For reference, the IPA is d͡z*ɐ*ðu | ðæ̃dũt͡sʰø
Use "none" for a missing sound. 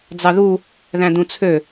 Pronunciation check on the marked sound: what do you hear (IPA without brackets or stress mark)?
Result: ɑ